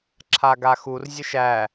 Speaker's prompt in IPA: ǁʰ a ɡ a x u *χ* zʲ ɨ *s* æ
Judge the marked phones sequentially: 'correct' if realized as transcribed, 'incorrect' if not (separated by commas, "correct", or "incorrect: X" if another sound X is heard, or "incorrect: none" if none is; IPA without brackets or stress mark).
incorrect: r, incorrect: ʃ